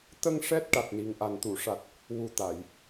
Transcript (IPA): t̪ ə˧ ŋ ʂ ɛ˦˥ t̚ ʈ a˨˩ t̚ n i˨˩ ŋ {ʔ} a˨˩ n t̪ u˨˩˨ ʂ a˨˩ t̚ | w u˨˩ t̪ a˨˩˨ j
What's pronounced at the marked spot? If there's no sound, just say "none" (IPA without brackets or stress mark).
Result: ʔ